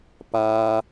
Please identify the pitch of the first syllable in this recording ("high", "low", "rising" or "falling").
low